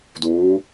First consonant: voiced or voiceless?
voiced